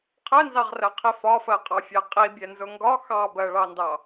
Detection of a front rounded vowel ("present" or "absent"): absent